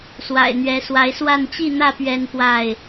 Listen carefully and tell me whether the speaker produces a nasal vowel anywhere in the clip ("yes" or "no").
no